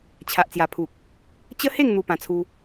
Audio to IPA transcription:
t͡ɕʰ a˨ ʔ t͡s j a˨˩ pʰ u˨ k̚ | t͡ɕ ə˦ h e˥˧ ŋ n̪ u˦ p ã˧ t͡sʰ u˦

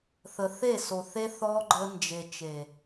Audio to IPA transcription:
θ ə˨ θ e˦˨ s o˨ θ e˦ θ ɔ˦ ɡ͡ǃ ə˦ n d͡ʒ e˨ t͡ʃ e˨

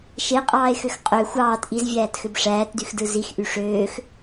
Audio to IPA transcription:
ʃ e qʼ ɑː e̯ x ø x qʼ ø xʷ ɑː t ʔ i z vʲ æː t x ø b ʂ æː t d y x d ɯ z i x ʔ y ʂ øː x

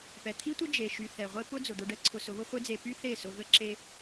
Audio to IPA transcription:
p ɛ˨ t̪ʰ i˦ tʷ ə˦ d͡ʒ e˨ ʃ y˨ θ ɛ˨ ʁʷ e˦ p ʊ˦ d͡z ʊ˨ d̪ ʊ˧ ɖ ɛ˦ ǀʰ ʊ˧ s ʊ˨˦ β ʊ˦ χʷ e˦ d͡z e˧ p y˦ θ e˦˨ s ʊ˧ ɣ ə˦ ǁ e˧

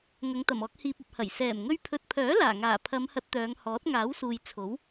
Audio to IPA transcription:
ŋ ɐ˨˧ ŋ t̪ ɐ˨˩ m ɔː˧ k̚ h iː˨ p̚ ɐ˨ p̚ h ɐ˨˩ j s ɛː˨˩ m ŋ ɵ˧ ɥ pʰ ɵ˨ t̚ pʰ œː˨˥ l aː˨˩ ŋ aː˨˩ pʰ ɐ˨˧ m h ɐ˧ t̚ t̪ œː˨˧ ŋ h ɔː˨˥ t̚ ŋ aː˨˥ w s uː˨ j t͡sʰ o˨˥ w

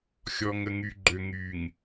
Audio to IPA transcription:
xʲ ɔ˨ ŋ ə˨ ŋ y˨ ɡ͡ǃ ø˨ ŋ y˨ ŋ

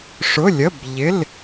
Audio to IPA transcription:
ʂ ʊ˧˥˧ lʲ ə˧˥˧ b ʎ ɪ˧˥˧ l

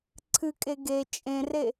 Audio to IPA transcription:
ǀʰ ɨ kʼ e ɡ e t͡ʃʼ ẽ r e

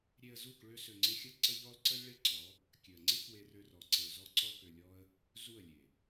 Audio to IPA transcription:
ɾʲ e˧ ə̯ z u˦˨ k ɭ ø˦ s ø˧ ŋ͡ǀ ɪ˦ xʲ ə˦ ǀ ə˦ ʎ ɔ˦ lˠ ǀ ə˦ lʲ ɭ e˦ ǀ ɔ˨˦ | kʲ ø˨ ə̯ ŋ͡ǀ ɪ˦ k w e˧ r ø˧ r ɔ˨ ǀ e˨ ʊ̯ z ɔ˧ ǀ ɔ˧ k ø˧ lʲ ɔ˦ ə̯ | z u˦˨ ə̯ lʲ e˨

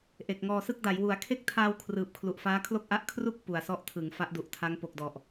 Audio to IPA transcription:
ʔ e˨˩ k̚ ŋ ɔː˧ s ɯ˥˩ k̚ d a˩˦ j w u˨˩ a̯ kʰ e˥˩ k̚ tʰ aː˧ w kʰ r ɯː˨˩ p̚ kʰ l u˨˩ ʔ f aː˦˥ kʰ l o˥˩ k̚ ʔ a˦˥ ʔ kʰ r u˥˩ k̚ p u˨˩ a̯ s ɔ˦˥ ʔ tʰ ɯ˩˦ ŋ f a˦˥ ʔ d u˨˩ ʔ tʰ a˦˥ ŋ p o˨˩ k̚ d ɔ˨˩ ʔ

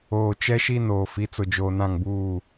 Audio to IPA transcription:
oː˨ t͡ʃ ɛ˦ ʃ i˦ n oː˨ f i˨˦ t͡s ʊ˨ d͡ʒ oː˨ n ã˦˨ ŋ b uː˦˨

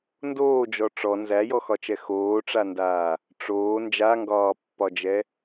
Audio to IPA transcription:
n d oː d͡ʒ ɔ ʈ͡ʂ ɔ n z æ j ɔ x ɒ t͡ʃ ɛ x oː ʈ͡ʂ a n d aː | ʈ͡ʂ oː n d͡ʒ a ŋ ɡ ɒː pː ɒ d͡ʒ ɛ

